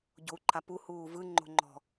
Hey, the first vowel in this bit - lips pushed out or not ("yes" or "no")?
yes